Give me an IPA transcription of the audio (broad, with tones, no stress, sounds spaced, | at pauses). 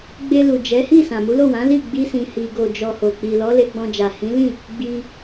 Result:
ɡ͡b e˧ l u˨ d͡ʒ ɛ˨˦ h i˦˨ s ã˨ m u˨˦ l o˦˨ w ã˨˦ l i˦˨ ɡ͡b i˧ s ĩ˨ h i˨ ɡ o˨ d͡ʒ ɔ˨ h o˨ k͡p i˨ l ɔ˨˦ l e˧ ɡ͡b ɔ̃˧ d͡ʒ a˨ h ĩ˨˦ l ĩ˦˨ | ɡ͡b i˧